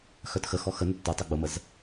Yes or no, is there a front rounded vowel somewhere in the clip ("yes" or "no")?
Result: yes